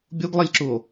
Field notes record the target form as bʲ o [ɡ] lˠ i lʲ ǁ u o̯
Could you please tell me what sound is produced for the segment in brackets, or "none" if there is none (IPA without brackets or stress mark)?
ɡ